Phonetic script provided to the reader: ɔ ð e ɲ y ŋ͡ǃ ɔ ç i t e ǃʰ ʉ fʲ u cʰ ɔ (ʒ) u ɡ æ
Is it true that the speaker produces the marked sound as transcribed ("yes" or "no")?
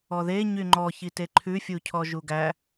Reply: yes